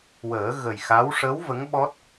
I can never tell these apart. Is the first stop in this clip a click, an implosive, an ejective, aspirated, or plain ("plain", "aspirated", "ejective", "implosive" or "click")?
implosive